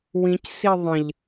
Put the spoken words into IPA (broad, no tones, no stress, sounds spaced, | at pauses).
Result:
w ĩ c s i ðˤ ə̃ ʎ